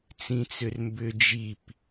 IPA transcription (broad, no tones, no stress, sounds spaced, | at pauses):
t͡s ĩ t͡s ʏ r m b ʏ d͡ʒ i p